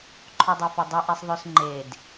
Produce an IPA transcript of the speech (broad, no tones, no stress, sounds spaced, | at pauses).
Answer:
ǃʰ o dˤ ɛ f o dˤ ɛ ʔ e sˤ ðˤ ø s ŋ͡ǃ e d